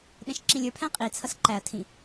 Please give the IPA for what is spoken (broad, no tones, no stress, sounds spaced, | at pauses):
ɗ ɛ̃ ʃ ǁ ĩ lʲ ə˞ pʰ æ̃ qʼ i t͡sʰ ʌ s ǃ æ ɐ̯ tʰ ĩ